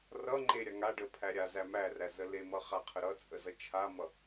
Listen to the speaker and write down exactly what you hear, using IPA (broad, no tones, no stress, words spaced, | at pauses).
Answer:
rʌŋ͡ǃe ɾʲaŋaɖə pʰæɾʲazæ mæræ zəlemʌ χaqʰəɾʌt͡sʼə zʌt͡ʃʰamʌ